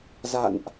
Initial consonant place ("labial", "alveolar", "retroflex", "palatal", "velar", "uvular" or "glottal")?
alveolar